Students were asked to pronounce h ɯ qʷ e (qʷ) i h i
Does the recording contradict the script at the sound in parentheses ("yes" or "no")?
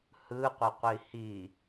no